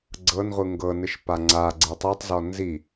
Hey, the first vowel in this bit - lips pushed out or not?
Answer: no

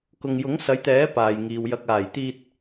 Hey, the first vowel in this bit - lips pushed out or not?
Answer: yes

